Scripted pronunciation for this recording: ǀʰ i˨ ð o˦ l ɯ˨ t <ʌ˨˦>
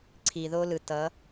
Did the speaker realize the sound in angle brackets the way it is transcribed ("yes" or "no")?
yes